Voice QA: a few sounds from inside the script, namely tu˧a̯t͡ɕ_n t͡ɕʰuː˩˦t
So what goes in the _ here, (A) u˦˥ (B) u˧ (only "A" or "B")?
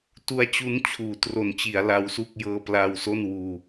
A